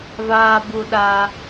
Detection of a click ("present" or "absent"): absent